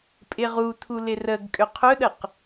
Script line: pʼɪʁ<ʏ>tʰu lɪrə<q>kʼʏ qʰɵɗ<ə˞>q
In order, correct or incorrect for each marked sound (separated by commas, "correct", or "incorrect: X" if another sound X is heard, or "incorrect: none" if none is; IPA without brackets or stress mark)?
incorrect: u, incorrect: ɡ, incorrect: ə